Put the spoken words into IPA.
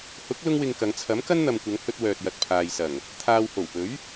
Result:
h ʊ˨˥ k̚ l ʊ˥ ŋ w ɪ˧ ŋ k ɐ˨˧ ŋ t͡sʰ ɐ˨˥ m k ɐ˥ n n̪ ɐ˨ m kʷ ɐ˨˧ ŋ h ɵ˧ t̚ w œː˨ t̚ j ɐ˨ t̚ pʰ aː˨ j s ɐ˨˩ ŋ | t̪ʰ aː˨ w h o˨˩ w p ɵ˨˥ ɥ

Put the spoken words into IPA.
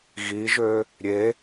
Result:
ɣ i ʒ ø | ɾʲ e

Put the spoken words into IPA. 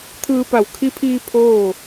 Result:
t̪ʰ ɯː˧ p a˧˩ w kʰ i˧ pʰ iː˧ pʰ oː˥˨

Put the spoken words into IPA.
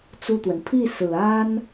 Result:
t͡s u˥˩ t̪ w ə˩ n pʰ i˥˩ s ɹ̩˨˩ a˥ n

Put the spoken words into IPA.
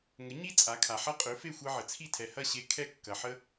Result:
ŋ ə˩˥ ɲ i˥ t͡sʼ a˩˥ kʰ a˩ ħ ɐ˥ qʼ ø˩˥ f e˥˩ xʷ ɛ˧ ʕ ə˩ t͡sʰ i˥˩ tʰ ɛ˩ h ɐ˥˩ ɕ e˧ kʰ ɛ˥˩ kː ɐ˩ ħ ə˥

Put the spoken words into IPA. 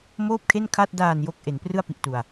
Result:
m oː˥˩ p̚ kʰ e˥˩ n kʰ a˥˩ t̚ d aː˨˩ n j o˨˩ k̚ ʔ e˩˦ n p r ɯ˥˩ a̯ p i˨˩ ʔ t u˨˩ a̯

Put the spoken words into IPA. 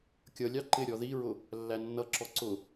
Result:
kʲ ʌ lʲ ɑ ǃ ɪ ɾʲ ɔ ð i ɹ ʊ | lː æ nː ʌ ǁ ɔ ǀ ʊ

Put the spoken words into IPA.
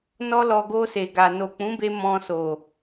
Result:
n ɔ˧ l ɔ˨ ɡ o˧ s e˨ ɡ a˨ n o˨ k͡p ũ˨˦ b e˧ m ɔ̃˧ s o˨

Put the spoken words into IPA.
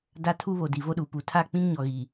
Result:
d a˦ tʰ u˦ β o˨ d i˨ v o˦ ɗ u˨ p u˨ tʰ a˦˨ k͡p ĩ˦ ŋ ɲ ɔ˨ ɣ i˨

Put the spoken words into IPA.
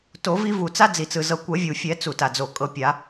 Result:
t o˨˩˦ v i˦ v u˩ t͡s a˦ d͡z i˩ t͡s ɯ˩ z ɤ˨˩˦ kʷ ɛ˨˩˦ vʲ u˩ fʲ ɛ˨˩˦ t͡s u˩ t a˩ d͡z o˩ kʼ ɤ˨˩˦ pʲ a˨˩˦

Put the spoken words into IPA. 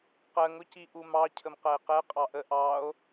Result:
q ɜ ŋ ʊ c i ʔ u m ɑ cʰ ə m q ɜ e̯ q ɛ qʼ ɑ ʔ ə ʔ ɑ o̯

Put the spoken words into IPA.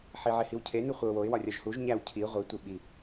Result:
ħ i ʕ e h i w cʰ e n u χʷ e ʊ̯ w o ɪ̯ w ɒ rʲ ɒ ʒ h u ʒ ɲ æ w cʰ i ʁʷ i tʷ i ɓ i

